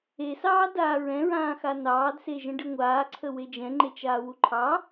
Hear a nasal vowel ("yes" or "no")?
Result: yes